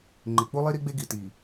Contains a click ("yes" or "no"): yes